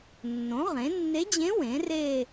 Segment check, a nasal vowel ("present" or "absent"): present